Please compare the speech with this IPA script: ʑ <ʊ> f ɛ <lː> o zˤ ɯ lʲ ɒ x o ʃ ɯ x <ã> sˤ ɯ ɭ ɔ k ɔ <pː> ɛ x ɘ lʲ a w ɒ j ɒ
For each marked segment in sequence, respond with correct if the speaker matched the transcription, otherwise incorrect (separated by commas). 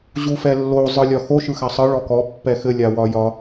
incorrect, correct, incorrect, correct